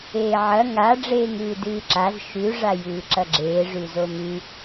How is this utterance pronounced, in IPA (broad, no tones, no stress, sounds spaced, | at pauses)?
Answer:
eː ʕ ɐ ŋ a ɖ͡ʐ eː ŋ ɨː d ɨː ǁ a z ʃ ʉ ʐ a j ɨː ǁ ɐ ɡ͡ǁ eː ʐ ʉ z o m ʉ